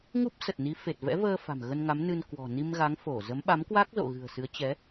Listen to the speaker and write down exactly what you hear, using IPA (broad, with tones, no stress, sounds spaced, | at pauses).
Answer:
ŋ u˦˥ p̚ s ə˨˩ t̚ n i˨˦ f e˨˩ t̚ v ɛ̰˧˥ v əː˧ f a̤˨˩ m ɣ ə˧ n ŋ a˨˦ m n ɨ˧ n k w ɔ̤˨˩ n i˧ m ɣ a˨˦ ŋ f o˧˩ z ə˨˦ m ɓ a˨˦ m k w a˦˥ k̚ z o̰˧˨ ɣ ɨ̤˨˩ ə̯ s ɨ˨˦ ə̯ t͡ɕ ɛ˨˦